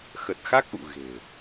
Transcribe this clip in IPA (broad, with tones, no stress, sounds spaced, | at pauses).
x ə˨˩ t̚ x a˦˥ k̚ ʔ ṵ˧˨ ɣ e̤˨˩